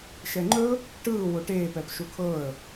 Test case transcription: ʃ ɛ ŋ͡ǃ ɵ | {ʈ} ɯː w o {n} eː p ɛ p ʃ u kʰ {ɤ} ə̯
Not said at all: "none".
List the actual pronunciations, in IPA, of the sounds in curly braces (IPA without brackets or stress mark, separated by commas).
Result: ʈ, ʈ, ɤ